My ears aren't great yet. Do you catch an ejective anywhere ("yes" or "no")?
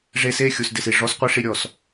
no